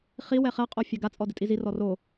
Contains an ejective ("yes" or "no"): yes